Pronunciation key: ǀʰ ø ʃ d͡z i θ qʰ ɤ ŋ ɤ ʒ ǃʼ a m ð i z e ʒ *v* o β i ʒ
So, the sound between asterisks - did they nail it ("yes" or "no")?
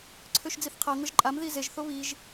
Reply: no